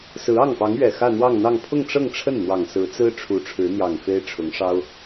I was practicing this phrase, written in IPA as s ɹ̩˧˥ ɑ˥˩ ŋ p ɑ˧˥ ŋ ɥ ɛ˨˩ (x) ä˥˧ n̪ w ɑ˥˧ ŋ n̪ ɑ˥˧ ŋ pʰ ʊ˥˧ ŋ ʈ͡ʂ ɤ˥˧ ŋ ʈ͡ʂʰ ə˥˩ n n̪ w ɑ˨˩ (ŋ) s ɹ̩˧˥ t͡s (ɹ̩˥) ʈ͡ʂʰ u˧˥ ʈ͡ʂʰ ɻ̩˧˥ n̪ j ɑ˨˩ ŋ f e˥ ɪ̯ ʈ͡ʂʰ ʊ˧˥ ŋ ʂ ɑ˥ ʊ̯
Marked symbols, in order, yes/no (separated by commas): yes, yes, yes